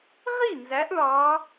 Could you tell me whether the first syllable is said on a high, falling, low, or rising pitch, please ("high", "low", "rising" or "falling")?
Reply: falling